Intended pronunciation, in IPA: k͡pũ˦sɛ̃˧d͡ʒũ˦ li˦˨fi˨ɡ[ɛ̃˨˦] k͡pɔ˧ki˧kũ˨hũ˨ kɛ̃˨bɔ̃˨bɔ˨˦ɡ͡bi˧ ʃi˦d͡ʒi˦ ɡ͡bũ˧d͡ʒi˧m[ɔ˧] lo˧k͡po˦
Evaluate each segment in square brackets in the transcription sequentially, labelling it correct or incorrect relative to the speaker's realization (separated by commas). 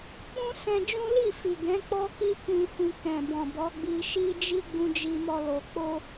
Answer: correct, correct